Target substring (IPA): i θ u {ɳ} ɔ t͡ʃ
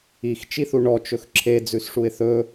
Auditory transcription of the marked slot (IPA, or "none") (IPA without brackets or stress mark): ɳ